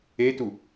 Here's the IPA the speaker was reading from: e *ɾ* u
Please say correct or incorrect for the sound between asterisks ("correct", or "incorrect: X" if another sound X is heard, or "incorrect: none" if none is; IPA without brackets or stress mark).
incorrect: t